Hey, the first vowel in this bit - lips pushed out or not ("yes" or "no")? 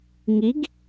no